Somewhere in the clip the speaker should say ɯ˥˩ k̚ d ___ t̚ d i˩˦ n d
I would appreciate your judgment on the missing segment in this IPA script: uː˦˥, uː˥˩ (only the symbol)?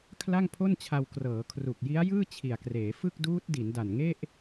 uː˦˥